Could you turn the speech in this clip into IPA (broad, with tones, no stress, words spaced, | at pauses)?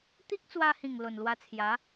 t̪i˦k̚t͡swa˧hĩ˨˩ŋ lo˨˩nlwa˧t͡sʰja˨˦